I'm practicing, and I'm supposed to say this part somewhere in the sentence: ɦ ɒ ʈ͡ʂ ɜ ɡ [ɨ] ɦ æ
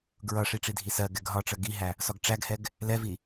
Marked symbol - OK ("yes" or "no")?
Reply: no